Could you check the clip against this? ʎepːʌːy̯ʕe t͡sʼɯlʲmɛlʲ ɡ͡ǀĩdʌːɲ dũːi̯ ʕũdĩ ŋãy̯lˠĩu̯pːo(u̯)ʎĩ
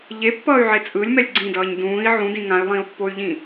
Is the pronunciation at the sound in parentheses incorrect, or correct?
incorrect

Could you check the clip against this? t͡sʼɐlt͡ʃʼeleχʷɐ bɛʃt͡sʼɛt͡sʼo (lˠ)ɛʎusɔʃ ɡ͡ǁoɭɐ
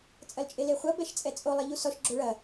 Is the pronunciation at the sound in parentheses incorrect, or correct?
correct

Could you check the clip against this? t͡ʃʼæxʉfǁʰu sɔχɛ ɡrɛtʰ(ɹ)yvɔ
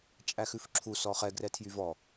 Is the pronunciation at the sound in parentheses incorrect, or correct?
incorrect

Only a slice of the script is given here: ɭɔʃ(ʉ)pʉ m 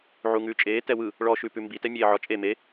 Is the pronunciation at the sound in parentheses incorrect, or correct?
correct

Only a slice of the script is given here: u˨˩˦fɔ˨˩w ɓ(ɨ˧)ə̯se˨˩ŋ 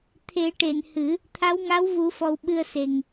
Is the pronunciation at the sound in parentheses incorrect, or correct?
correct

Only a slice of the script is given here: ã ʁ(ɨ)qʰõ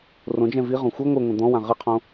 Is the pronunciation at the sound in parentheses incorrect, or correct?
correct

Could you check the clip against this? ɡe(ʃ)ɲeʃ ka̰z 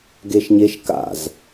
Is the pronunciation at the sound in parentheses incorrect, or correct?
correct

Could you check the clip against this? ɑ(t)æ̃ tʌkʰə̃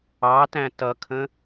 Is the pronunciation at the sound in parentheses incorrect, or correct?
correct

